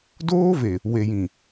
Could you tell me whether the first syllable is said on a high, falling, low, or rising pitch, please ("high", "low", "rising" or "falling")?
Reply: high